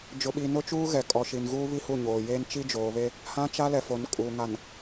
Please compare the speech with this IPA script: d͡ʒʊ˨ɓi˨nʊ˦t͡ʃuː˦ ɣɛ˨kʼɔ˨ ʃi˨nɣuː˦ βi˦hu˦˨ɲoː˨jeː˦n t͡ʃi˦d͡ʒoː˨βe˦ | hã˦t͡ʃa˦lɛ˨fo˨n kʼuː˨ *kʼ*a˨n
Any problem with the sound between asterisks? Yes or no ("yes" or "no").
yes